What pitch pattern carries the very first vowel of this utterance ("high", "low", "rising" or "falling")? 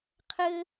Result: high